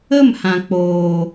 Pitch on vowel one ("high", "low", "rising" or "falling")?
falling